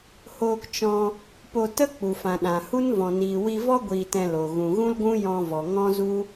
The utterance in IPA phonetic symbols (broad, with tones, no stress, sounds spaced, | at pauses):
h oː˧ k t͡ʃ ɔ̃˧ | p o˧ t ə˦ k͡p u˨ f ã˨ ɗ ã˨ h u˦ n v ɔ̃˨ n iː˨ w i˧ v ɔ˦ ɡʷ iː˧ t ɛ̃˧ l o˨ ɣ ũ˨ ɣ ũ˦ l ɡʷ ũ˦ j ɔ̃˧ v ɔ˨ ŋ ɔ̃˦ z u˦